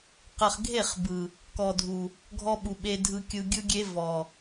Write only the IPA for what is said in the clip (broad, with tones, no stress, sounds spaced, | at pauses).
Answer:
q ə˨ χ ɡʱ e˦˨ χ b ɯ˨ | k ɔ˨ dʱ u˨ | ɡʱ ɔ˦ ɓ u˨ ɓ e˦ dʱ ɯ˦ kʲ ɯ˦ ɡʲ ɯ˦ ɡʲ e˦ v ɔ˨